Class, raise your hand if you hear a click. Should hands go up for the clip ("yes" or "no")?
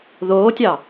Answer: no